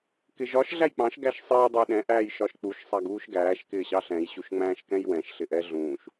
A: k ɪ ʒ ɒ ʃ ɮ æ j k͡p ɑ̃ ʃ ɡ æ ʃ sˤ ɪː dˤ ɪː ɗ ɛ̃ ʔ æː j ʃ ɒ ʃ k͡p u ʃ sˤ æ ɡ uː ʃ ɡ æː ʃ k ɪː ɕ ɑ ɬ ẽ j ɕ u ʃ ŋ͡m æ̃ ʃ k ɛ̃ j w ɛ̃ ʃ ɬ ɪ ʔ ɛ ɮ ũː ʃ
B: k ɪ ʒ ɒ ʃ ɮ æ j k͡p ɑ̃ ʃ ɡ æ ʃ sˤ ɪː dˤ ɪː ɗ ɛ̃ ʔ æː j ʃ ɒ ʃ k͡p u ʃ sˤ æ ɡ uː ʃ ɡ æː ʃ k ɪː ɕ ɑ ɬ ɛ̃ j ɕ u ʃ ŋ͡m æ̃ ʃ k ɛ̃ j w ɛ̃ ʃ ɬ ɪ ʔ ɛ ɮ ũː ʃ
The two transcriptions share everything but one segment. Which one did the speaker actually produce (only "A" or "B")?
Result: B